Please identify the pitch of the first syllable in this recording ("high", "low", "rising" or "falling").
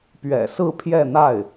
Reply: low